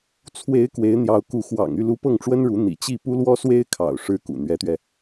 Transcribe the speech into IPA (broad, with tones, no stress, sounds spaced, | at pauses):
t͡sʰ w e˧˥ ɪ̯ k w e˧˥ ɪ̯ n̪ j ɑ˧˥ ʊ̯ k u˧˥ x w ɑ̰˨˩ ŋ y˥˩ l u˧˥ p ɤ˥˩ ŋ ʈ͡ʂ w ə˥ n ɻ u˧˥ n̪ ḭ˨˩ t͡ɕ i˥˩ p u˥ l w ɔ˥ s w e˥ ɪ̯ kʰ ɑ̰˨˩ ʊ̯ ʂ ɻ̩˥ k ṵ˨˩ n̪ ɥ ɛ˧˥ t̪ ɥ ɛ˧